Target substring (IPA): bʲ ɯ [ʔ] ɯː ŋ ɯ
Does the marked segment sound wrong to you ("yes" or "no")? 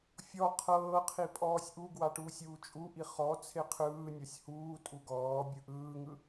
no